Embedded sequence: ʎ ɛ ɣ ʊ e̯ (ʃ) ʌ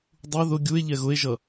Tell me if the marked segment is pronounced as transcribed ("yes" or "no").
no